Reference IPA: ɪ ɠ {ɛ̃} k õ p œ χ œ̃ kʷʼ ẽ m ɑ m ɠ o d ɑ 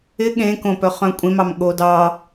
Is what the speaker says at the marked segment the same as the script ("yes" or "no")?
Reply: no